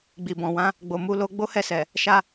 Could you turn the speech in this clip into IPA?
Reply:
ɡ͡b i˨ b ɔ̃˨ w ã˨˦ | ɡ͡b o˨ m u˧ l o˧ ɡ͡b o˦ h ɛ˦˨ s ɛ˨ | ʃ a˧

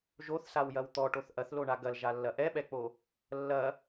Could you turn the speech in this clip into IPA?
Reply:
ʒ o θ s a w j ɐ w t̪ ɔ ʈ o θ ʔ ɐ θ l o ɳ a ɡ ɐ l ʒ a lː ɐ ʔ ɛ ɓ ɛ k͡p o | lː ɐ

